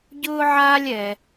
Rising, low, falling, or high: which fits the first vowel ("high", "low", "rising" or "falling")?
high